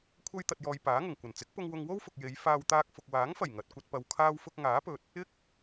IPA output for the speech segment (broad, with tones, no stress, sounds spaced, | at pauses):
kʷʰ ɐ˥ j t̪ ɐ˧ t̚ j ɔː˧ j p aː˨˥ ŋ ʊ˨˩ ŋ kʷ ɐ˨˩ n t͡s ɪ˨˥ k̚ p ʊ˧ ŋ w ʊ˧ ŋ w o˥ w f ʊ˨ k̚ j e˨˧ j f aː˧ w t̪ aː˧ k̚ f ʊ˨ k̚ w aː˨˥ ŋ f ɐ˨˩ j ŋ ɐ˨ t̚ kʷ ɐ˧ t̚ p ɐ˨ w kʰ aː˧ w f ʊ˧ k̚ ŋ aː˨˥ p ɵ˨ t̚ | ɪ˥ k̚